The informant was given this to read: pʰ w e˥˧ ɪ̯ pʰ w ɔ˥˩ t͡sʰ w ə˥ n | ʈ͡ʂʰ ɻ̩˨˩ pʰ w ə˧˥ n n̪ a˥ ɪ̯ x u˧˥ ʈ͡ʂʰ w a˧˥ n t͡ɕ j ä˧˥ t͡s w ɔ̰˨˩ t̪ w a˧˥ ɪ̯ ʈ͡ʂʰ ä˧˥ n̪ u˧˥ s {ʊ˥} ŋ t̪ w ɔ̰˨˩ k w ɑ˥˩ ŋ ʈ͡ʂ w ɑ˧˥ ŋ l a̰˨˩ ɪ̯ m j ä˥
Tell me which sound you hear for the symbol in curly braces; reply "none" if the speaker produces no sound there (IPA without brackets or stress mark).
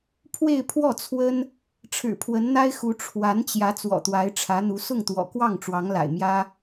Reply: ʊ˥˩